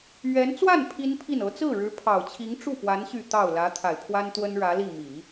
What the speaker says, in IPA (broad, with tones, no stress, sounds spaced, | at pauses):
ɥ ɛ˧˥ n t͡s w a˥˩ n pʰ i˥ n pʰ i˥˩ n ɤ˧˥ t͡s ɹ̩˥˩ ɻ ɻ̩˧˥ pʰ ɑ˨˩ ʊ̯ t͡ɕʰ i˧˥ ŋ ʈ͡ʂ u˥˩ p w a˧˥ n ɕ y˥˧ t̪ ɑ˥˩ ʊ̯ l ä˧˥ t̪ʰ a˨˩ ɪ̯ pʰ w a˥ n t̪ w ə˥ n ɻ ä˧˥ l i˥˩ m i˨˩˦